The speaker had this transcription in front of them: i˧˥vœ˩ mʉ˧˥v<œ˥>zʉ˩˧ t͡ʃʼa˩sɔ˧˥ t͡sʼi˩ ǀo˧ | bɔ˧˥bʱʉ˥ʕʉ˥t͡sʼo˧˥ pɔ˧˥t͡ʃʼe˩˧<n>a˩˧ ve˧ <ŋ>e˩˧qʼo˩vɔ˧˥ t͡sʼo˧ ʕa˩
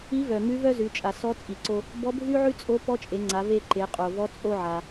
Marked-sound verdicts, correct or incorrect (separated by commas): correct, incorrect, incorrect